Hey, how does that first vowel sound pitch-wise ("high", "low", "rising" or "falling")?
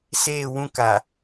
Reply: falling